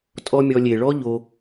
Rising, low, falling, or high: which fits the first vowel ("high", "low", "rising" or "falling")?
high